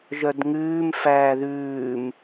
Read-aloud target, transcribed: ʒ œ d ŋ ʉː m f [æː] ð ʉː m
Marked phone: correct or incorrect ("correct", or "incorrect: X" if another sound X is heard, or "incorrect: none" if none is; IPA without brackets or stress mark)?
correct